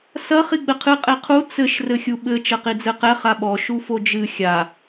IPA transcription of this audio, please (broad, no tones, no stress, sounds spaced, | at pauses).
s ɐ χ i ɡ͡b ɘ qʰ ɨ qʼ e qʰ u t͡s ɘ ʃ r ɘ xʲ u ɓ ɘ t͡ʃ ɐ q i d͡z ɘ q ɛ χ a ɓ ɔ ʃ u f o d͡ʒ ɨ xʲ a